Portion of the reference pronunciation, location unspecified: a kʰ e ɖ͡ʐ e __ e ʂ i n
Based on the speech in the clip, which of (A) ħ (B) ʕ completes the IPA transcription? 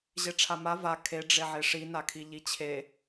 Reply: B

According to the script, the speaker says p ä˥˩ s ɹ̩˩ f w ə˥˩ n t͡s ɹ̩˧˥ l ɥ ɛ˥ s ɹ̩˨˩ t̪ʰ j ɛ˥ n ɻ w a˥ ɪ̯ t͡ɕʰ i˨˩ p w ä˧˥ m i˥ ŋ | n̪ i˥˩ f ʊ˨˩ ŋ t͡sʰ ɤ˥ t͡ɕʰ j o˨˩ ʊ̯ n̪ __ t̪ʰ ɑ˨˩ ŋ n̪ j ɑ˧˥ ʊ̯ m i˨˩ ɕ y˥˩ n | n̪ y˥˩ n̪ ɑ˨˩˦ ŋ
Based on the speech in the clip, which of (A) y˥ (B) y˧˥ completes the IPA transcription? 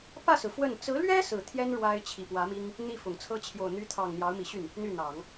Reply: B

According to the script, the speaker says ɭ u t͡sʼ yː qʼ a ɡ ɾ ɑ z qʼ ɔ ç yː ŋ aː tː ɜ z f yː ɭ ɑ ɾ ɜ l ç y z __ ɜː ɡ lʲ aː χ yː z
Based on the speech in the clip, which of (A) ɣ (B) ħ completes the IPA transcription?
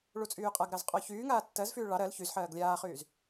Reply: B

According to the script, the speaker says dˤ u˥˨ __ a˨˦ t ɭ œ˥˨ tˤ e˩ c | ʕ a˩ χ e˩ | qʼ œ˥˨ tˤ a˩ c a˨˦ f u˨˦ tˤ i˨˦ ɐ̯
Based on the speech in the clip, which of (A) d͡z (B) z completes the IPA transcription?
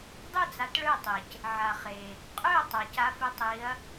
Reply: A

